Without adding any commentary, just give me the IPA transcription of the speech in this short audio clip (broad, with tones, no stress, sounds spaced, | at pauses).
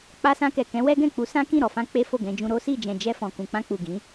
k͡p a˧ s ã˧ k ɛ˨ k ɛ̃˨˦ w ɛ˦ ɡ ɛ̃˦˨ k͡p u˨˦ s ã˦ k ĩ˦˨ ɾ ɔ˨ f ã˧ k͡p e˦ f o˦˨ ɡ ɛ̃˧ d͡ʒ ũ˧ ɾ o˦ s i˦˨ d͡ʒ ɛ̃˨ d͡ʒ ɛ˧ f ɔ̃˨ k ũ˨ k͡p ã˧ k͡p u˨ ɡ ĩ˨˦